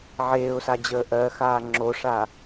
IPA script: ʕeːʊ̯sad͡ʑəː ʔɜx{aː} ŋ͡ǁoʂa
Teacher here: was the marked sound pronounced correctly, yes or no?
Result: yes